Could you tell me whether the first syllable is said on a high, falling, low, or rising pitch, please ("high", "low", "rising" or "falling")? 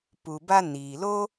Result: low